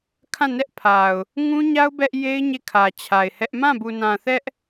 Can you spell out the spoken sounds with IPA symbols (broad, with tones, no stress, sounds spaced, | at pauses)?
kʰ ã˦˨ n ɛ˦ ʔ pʰ a˨ ʊ̯ | ŋ ũ˦ ɲ a˦ ʊ̯ b ɛ˦ ʔ j e˦ ɪ̯ ɲ e˦˨ kʰ ä˨ t͡ɕʰ a˨ ɪ̯ h ɛ˦ ʔ m ã˦˨ b u˨ n ã˨ θ ɛ˦ ʔ